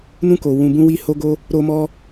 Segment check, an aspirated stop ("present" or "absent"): absent